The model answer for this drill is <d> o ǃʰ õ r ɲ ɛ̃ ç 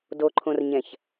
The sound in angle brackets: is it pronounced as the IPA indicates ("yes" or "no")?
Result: yes